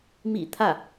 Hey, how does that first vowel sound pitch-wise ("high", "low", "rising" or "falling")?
low